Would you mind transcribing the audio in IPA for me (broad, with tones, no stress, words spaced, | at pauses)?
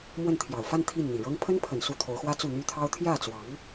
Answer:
mwə˥˩nt̪ʰjɑ˨˩ʊ̯ fa˥˧n t̪ʰi˥˩n n̪i˨˩ɻɤ˥ŋ pʰə˥npʰə˨˩n su˥˩t̪ʰo˧˥ʊ̯xwä˥ t͡su˥˩n̪y˥t̪ʰɑ˥ʊ̯ t̪ʰjä˥˩t͡swɑ˧˥ŋ